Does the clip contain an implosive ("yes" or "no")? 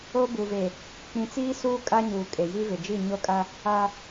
no